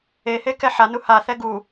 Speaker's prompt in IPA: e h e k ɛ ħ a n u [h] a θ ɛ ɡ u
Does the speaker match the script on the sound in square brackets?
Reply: yes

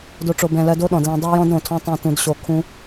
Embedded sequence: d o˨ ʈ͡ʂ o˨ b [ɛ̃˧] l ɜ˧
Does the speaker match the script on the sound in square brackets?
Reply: no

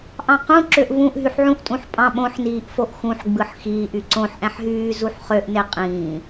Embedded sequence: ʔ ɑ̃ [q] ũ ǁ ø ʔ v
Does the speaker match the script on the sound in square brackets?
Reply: yes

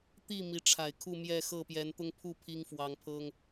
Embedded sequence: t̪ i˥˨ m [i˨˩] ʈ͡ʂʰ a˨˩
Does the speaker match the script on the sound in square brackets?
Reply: no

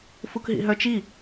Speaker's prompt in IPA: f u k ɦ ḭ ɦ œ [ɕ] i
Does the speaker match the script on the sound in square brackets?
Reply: no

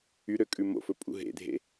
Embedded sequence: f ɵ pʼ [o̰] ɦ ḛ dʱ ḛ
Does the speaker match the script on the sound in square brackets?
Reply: no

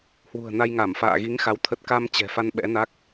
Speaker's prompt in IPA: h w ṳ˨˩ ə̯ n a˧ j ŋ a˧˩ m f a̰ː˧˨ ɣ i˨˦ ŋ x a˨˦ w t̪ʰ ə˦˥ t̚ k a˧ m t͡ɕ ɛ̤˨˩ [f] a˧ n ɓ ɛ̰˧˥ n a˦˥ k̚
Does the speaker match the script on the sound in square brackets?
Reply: yes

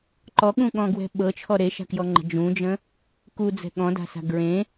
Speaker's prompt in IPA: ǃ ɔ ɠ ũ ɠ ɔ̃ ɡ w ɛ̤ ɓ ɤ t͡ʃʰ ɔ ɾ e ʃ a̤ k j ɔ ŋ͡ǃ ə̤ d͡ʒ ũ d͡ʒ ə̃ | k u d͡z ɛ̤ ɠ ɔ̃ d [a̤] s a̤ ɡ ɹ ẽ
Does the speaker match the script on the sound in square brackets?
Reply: yes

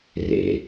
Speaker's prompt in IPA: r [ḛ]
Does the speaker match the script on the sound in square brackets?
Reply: yes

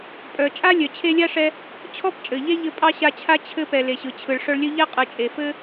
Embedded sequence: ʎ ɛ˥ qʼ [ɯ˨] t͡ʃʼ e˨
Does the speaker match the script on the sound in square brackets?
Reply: yes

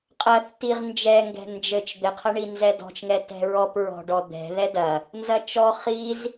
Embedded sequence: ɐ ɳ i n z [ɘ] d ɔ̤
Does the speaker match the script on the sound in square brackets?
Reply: no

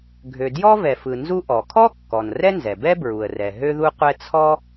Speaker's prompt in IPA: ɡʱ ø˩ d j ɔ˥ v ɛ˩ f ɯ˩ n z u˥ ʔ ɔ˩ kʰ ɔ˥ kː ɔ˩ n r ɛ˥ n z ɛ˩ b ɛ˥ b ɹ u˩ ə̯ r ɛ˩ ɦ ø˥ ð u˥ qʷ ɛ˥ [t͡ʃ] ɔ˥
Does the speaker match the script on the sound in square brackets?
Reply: no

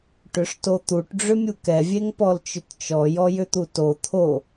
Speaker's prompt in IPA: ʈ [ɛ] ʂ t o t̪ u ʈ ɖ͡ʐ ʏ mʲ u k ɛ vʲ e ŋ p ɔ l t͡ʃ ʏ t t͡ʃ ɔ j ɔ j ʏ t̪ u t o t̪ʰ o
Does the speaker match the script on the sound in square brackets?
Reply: no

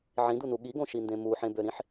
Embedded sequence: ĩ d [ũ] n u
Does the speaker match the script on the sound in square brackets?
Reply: no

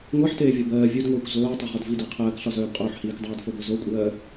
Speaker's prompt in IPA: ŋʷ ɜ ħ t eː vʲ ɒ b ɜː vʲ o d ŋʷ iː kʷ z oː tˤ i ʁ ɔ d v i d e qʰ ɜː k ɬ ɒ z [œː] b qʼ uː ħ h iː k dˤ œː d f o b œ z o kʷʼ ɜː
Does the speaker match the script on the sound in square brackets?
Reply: yes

